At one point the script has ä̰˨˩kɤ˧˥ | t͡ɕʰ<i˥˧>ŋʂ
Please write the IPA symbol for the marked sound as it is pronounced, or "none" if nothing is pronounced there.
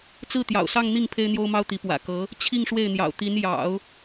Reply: i˥˧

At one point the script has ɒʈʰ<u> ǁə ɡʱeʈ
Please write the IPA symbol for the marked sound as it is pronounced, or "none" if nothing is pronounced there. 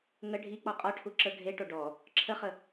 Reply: u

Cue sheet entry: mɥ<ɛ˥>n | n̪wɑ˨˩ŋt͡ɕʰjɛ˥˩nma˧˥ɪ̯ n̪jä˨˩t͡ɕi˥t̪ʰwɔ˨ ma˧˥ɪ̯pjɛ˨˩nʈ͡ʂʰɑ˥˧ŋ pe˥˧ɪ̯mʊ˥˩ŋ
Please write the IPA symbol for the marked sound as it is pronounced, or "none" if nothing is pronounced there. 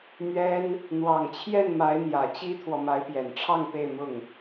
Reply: ɛ˥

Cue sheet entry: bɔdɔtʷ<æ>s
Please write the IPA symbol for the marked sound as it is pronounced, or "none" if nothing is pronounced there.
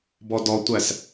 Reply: æ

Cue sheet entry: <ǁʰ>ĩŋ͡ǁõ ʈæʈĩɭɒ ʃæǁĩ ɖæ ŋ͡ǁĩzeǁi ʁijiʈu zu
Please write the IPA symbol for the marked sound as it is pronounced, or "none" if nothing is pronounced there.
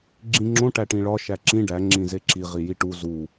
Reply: ɡ͡ǁ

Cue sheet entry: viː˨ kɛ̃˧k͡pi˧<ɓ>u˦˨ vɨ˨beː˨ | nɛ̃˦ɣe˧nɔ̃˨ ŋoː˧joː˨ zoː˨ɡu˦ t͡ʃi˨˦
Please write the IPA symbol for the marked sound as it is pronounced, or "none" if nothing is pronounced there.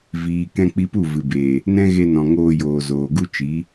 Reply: p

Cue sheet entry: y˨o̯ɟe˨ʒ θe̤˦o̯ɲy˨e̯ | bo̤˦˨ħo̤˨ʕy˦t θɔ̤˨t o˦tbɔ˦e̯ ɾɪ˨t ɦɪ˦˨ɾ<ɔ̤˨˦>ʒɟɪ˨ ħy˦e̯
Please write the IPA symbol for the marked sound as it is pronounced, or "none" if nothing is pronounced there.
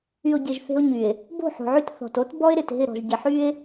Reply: ɔ̤˨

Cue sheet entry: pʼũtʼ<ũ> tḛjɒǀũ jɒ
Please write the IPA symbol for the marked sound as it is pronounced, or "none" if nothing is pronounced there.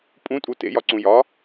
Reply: u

